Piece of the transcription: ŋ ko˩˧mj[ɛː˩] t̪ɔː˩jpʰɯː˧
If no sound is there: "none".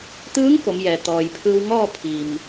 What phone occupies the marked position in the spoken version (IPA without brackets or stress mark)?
ɛː˩